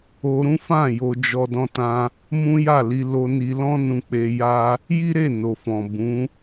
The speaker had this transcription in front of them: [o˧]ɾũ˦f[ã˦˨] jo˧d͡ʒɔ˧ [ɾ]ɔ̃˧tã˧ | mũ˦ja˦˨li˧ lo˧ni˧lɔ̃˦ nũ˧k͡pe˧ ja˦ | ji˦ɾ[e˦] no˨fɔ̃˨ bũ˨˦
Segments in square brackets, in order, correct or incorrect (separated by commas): correct, correct, incorrect, incorrect